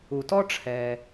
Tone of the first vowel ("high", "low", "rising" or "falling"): low